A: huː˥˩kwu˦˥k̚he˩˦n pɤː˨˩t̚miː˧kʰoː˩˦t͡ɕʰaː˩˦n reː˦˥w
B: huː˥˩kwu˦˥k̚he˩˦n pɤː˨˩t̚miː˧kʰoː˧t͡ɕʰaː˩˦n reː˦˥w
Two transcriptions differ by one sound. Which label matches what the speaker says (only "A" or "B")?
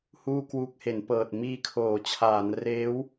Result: A